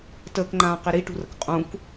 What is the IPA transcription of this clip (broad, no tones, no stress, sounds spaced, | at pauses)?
t əː k ŋ͡ǃ ãː q i ɾ i ʈ ṳ r ə k qʼ ũ k